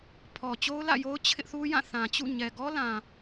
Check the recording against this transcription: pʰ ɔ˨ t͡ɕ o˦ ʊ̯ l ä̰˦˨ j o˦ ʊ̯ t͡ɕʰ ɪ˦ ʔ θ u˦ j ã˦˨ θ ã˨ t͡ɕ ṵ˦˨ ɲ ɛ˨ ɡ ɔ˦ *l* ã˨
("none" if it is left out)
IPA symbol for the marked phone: l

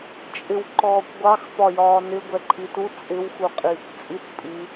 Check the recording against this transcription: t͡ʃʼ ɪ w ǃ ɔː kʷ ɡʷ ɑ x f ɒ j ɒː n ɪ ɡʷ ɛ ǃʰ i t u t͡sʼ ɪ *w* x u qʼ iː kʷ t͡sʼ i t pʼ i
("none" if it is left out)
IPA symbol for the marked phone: w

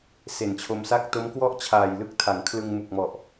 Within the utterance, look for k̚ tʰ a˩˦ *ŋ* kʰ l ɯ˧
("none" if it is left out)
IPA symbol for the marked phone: ŋ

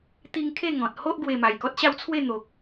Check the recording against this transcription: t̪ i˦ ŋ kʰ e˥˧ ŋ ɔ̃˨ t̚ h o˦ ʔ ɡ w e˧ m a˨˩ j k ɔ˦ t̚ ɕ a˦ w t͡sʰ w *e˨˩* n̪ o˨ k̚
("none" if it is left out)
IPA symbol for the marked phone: e˥˧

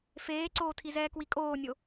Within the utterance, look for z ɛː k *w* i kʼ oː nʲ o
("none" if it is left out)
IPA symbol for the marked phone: w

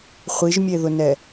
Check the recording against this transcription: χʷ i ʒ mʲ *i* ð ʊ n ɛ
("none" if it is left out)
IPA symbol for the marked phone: e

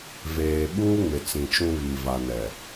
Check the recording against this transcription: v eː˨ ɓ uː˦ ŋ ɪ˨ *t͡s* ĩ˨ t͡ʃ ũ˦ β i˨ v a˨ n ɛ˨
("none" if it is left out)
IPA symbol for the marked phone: t͡s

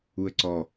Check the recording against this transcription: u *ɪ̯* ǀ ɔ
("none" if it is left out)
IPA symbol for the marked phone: ə̯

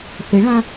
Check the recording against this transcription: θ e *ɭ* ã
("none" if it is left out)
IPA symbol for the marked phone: ɭ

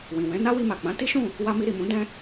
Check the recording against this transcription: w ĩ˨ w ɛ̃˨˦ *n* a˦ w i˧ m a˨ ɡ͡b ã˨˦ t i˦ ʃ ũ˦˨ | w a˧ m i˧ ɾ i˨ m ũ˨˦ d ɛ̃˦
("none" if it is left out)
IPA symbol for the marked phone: n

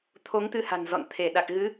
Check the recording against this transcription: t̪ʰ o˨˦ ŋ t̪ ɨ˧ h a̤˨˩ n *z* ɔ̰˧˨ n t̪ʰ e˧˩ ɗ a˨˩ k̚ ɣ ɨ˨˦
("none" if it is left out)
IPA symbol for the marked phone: z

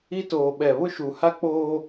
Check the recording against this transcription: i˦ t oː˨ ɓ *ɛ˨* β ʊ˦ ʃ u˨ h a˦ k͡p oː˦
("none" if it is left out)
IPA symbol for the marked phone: ɛ˨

